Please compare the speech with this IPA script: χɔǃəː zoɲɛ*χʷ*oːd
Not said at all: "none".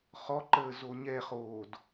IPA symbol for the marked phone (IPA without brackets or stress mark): χ